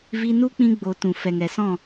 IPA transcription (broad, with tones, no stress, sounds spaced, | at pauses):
v i˧ n u˦ k͡p ĩ˧ ɡ͡b o˨ t ũ˨ f ɛ˨ ŋ ɛ˨ s ɔ̃˦˨